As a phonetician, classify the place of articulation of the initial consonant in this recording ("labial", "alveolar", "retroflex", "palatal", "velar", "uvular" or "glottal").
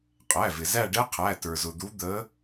uvular